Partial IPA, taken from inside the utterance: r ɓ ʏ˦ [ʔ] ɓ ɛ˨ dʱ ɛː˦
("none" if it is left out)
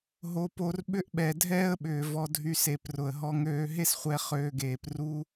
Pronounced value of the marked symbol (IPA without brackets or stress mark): ʔ